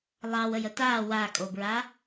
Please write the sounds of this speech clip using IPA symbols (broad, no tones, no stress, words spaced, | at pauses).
lˠɑwəjə ta wakʼobɹa